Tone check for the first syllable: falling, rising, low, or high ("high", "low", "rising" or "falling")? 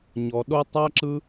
low